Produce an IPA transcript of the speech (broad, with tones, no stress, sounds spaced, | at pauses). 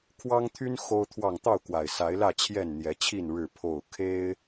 kʰ w ɑ˦ ŋ t̪ʰ y˦ n x o˦ ʊ̯ t̪ʰ w ɑ˥˨ ŋ t̪ ɑ˥˨ ʊ̯ k w a˨˩ ɪ̯ s a˨˦ ɪ̯ l ä˥˨ t͡ɕʰ j ɛ˥˨ n n̪ j ɛ˨˦ t͡ɕʰ i˥˨ n ɻ ɻ̩˥˨ pʰ o˥˨ ʊ̯ kʰ e˦ ɪ̯